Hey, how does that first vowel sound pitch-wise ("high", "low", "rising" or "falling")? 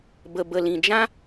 low